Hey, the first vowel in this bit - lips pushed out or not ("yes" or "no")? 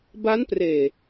no